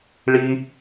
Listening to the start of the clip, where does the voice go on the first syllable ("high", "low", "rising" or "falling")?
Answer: high